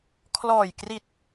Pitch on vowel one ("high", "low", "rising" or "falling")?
low